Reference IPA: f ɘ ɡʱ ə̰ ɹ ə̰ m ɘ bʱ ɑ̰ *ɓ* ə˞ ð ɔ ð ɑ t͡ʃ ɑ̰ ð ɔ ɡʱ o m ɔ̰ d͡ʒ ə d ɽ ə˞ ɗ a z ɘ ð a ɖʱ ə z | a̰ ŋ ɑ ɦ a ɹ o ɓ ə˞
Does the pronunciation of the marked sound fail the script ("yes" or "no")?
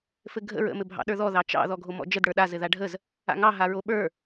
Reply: yes